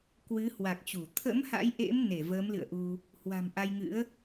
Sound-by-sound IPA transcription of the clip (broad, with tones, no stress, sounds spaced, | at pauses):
k w ɨ˨˦ h w a˨˩ k̚ t͡ɕ u˧˩ t̪ʰ ə̰˧˥ m h a̰˧˥ j ʔ ḛ˧˥ m n e˧˩ v əː˨˦ m l ɨ̰˧˨ ə̯ ʔ u˧ | h w a̤˨˩ m ʔ a˧ j ŋ ɨ̰˧˥ ə̯